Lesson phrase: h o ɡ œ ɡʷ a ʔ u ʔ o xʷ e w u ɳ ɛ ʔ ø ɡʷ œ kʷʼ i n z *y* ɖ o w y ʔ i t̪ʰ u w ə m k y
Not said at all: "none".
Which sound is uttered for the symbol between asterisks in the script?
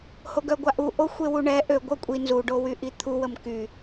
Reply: u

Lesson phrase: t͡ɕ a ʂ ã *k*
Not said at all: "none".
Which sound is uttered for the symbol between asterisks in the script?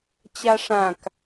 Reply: k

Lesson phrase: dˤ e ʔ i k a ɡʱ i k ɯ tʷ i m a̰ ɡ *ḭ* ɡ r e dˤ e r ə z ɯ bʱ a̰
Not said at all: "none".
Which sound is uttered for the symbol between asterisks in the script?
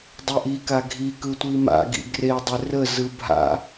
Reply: ḭ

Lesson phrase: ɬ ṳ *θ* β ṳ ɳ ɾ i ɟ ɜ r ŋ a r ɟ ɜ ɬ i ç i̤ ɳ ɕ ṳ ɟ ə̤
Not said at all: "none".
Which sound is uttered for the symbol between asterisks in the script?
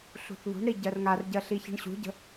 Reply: θ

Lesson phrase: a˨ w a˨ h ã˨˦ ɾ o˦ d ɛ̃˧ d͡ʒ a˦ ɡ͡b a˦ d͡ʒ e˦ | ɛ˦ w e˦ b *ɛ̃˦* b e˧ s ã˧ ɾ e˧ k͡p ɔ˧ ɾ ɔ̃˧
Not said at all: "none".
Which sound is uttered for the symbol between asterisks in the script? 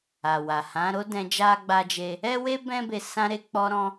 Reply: ɛ̃˦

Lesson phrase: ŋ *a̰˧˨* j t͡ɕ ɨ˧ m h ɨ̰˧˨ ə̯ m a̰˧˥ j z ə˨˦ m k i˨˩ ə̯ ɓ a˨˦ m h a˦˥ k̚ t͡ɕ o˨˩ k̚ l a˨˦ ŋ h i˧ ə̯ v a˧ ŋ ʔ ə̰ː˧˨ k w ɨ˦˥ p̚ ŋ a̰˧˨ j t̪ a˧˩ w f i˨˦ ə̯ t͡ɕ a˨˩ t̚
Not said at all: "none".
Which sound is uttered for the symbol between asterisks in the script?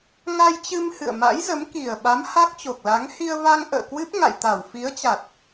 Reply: a˧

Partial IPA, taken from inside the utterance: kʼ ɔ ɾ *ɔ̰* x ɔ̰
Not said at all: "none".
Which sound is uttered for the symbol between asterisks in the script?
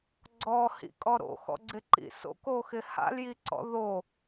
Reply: o̰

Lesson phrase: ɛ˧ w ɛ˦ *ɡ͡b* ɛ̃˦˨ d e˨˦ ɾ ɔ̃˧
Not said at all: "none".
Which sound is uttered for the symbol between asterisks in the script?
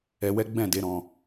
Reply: ɡ͡b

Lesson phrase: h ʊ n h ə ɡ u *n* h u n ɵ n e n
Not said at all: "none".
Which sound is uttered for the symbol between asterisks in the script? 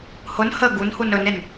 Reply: n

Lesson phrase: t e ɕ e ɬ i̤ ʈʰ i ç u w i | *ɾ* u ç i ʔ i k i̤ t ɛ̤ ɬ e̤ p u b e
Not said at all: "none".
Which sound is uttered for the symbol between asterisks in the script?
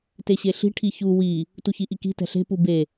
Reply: t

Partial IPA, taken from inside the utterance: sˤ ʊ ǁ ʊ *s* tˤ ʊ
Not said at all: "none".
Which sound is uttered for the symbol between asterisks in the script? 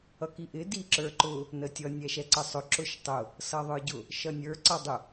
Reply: ʃ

